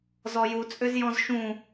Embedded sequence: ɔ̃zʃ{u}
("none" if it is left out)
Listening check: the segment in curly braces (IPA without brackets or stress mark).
ũ